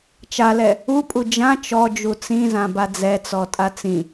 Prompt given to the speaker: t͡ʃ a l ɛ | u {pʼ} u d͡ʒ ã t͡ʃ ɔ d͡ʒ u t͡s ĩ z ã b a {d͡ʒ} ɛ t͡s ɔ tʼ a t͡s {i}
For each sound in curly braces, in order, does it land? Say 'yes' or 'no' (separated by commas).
yes, no, no